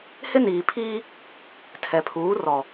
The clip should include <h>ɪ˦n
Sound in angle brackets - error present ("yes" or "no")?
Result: no